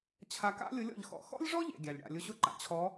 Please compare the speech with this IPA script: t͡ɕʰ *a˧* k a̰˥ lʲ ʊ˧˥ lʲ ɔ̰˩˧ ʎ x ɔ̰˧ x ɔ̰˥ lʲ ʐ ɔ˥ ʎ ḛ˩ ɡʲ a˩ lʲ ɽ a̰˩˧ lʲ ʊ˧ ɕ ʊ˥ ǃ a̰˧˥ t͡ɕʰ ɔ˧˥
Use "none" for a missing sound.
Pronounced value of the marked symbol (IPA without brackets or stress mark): a˧